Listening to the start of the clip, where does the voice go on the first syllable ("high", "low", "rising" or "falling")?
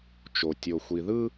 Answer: low